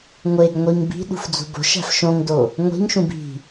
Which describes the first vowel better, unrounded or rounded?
unrounded